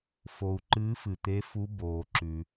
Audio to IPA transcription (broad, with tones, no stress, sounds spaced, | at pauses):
f o˩ u̯ ǃ ɨː˨˥ f ɨ˩ t̪ e˨˥ f u˨˥ b oː˩ ǁ ʉ˩